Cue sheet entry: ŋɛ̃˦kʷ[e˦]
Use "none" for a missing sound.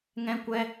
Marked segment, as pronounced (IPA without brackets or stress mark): ɛ˦